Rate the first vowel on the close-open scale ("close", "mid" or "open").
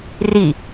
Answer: close